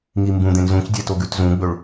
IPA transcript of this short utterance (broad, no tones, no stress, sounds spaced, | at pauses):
ŋ i m b ũ d̪ ẽ n z ũ c dʲ e t o ɡ ʉ t z ũ ɡ͡b ɵ ɭ